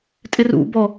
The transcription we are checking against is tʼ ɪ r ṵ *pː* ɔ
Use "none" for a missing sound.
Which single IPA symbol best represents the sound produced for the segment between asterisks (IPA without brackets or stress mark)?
b